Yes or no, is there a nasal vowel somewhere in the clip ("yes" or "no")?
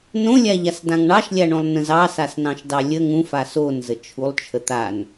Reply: yes